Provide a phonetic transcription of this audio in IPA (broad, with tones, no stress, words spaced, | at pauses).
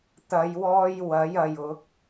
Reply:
t̪ɐ˨˧jwɔː˧j wɐ˨˥jɐ˨j ʊ˨˥k̚